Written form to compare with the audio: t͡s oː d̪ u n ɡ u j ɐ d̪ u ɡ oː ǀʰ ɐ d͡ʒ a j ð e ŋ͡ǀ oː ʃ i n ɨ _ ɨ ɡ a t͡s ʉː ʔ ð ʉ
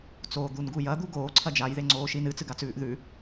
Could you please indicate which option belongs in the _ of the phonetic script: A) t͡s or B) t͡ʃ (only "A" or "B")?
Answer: A